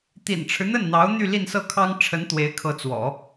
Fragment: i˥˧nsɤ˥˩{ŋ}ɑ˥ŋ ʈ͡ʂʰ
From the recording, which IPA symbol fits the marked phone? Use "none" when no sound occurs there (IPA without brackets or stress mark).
kʰ